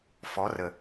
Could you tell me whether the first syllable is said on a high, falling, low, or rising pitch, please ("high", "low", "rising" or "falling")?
rising